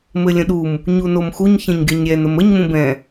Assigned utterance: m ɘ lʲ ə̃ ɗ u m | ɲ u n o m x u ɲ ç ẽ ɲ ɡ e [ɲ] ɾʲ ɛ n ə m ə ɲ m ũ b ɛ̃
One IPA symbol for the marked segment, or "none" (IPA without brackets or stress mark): ɲ